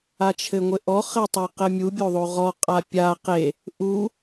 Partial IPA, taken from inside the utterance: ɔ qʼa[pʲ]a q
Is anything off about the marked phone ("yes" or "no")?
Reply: no